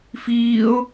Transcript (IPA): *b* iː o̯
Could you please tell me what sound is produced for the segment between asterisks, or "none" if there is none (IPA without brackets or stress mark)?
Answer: f